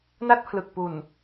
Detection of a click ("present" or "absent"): absent